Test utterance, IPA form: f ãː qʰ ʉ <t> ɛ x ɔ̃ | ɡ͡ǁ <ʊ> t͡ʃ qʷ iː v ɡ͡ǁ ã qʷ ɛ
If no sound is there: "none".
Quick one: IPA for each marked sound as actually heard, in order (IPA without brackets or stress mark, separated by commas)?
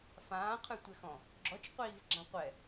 tʷ, ɔ